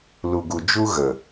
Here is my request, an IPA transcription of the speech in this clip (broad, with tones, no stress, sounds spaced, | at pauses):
l u˨ ɡ u˨ d͡ʒ u˦ ɣ ə˨